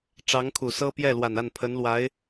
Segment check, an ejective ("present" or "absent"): absent